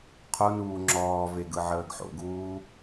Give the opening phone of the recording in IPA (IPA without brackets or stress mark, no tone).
qʰ